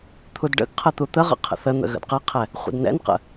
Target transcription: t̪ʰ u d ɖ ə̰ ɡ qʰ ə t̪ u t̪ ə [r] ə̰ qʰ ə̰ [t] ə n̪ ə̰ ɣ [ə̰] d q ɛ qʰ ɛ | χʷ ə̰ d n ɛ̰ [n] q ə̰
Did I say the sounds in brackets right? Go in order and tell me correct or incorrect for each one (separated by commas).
incorrect, incorrect, correct, correct